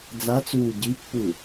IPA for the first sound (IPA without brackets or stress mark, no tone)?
d͡z